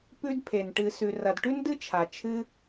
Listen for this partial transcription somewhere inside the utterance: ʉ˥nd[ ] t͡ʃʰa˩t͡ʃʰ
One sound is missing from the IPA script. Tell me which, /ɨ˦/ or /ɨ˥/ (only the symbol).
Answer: ɨ˥